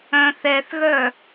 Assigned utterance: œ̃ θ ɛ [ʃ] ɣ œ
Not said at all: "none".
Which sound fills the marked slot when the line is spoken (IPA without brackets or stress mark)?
θ